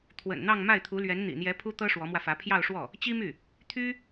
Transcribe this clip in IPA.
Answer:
t̪ʰwə̰˨˩nn̪ɑ˥˧ŋ ma˥˩ɪ̯t̪ʰu˧˥lɥɛ˧˥n n̪ḭ˨˩n̪jɛ˧˥ pʰu˥t̪ɤ˥ ʂwɔ˧˥mwä˧fä˧˥ pʰjɑ˥˧ʊ̯ʂwɔ˥˩ | t͡ɕi˥my˥˩ | t̪ʰy˥

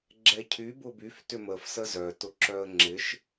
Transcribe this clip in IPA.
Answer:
ɡ͡ǁɛcʰy bʊbyf tʏməf səzœ tʊǁœə̯ŋ͡ǁɪʃ

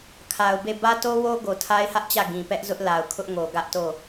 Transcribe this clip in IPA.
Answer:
kʰa˨ʊ̯be˦˨ bä˦to˦wo˦ ɡo˨tʰa˦ɪ̯hä˦ʔt͡ɕä˦˨ ɡĩ˨pɛ˦ʔ zʊ˦ʔla˨ʊ̯kʰʊ˦ʔŋo˨ ɡä˦ʔto˦˨

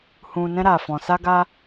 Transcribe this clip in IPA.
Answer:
hũ˧nɛ̃˦ ɾa˧fɔ̃˧ sa˦ɡa˦

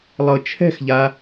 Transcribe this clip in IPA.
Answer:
lˠɤt͡ʃʰɛ̤xʎa

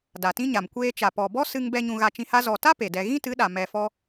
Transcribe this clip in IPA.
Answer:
da˨tĩ˦ɲa˨m kʷeː˧ t͡ʃa˨ pɔ˨bɔ˦ sɨ˧ŋbɛ˧ ɲũ˧ɣa˧t͡ʃĩ˧ha˦ zɔ˨ta˦ pe˨dɛ˧ ɣĩ˦tɨ˨˦ɗa˨ mɛ˧fɔ˦

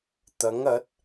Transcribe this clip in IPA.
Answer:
t̪ɐ˨˥ŋɐ˨˥t̚

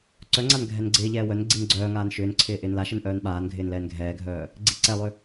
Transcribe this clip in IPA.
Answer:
ǀœŋ͡ǀan ɡʱɛnɡ͡ǀɪːʎɛː wœn ɡ͡ǀinɡ͡ǀœːŋaːn ʃʏːnǀʰɪː ʔɪːnlaʃɘn ʔœːnɓaːnɡʱɪːn lɛːnɡʱɛːɡʱœː | ɡ͡ǀiǀɛlˠʏ

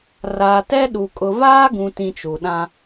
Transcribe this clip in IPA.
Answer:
raː˨tɛ˦ɗu˨ kʼʊ˨vaː˦ɡũ˨tĩ˨ t͡ʃu˨ɗã˦

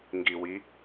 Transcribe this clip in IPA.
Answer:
ŋɡi wi

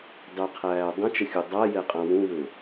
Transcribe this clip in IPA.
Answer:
dˤɘqʰæː dˤə̃t͡ʃəxʲu dˤajɛqʼã wũwɘ

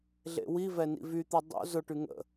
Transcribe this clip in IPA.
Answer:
ɮḛwivɛ nḭvyt̪ɛ dˤo̰ zʊʈy ŋə̰

